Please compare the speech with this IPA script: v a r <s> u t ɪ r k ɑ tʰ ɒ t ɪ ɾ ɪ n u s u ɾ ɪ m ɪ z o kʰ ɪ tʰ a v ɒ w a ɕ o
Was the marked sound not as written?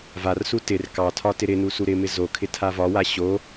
no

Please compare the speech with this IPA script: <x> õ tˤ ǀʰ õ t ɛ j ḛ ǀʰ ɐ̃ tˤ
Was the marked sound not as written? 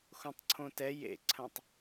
no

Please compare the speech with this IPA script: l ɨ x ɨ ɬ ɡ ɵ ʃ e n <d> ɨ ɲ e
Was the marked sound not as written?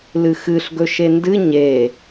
no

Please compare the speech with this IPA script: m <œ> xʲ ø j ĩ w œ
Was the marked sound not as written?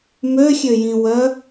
yes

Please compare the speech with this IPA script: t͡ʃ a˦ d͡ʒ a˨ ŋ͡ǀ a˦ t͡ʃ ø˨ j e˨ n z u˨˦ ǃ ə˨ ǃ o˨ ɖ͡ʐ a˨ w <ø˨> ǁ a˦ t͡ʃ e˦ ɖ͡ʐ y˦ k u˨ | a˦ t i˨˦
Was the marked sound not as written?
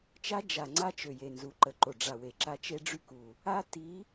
yes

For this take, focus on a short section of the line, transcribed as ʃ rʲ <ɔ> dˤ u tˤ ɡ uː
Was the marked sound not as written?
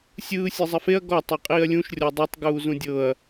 no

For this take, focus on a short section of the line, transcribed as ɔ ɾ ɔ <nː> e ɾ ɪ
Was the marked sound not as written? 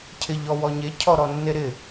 no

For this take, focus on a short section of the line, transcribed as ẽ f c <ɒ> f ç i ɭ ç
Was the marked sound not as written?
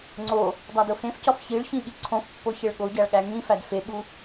no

